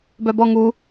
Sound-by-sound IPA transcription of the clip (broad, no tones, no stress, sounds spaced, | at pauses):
b œ b ɔ ŋ u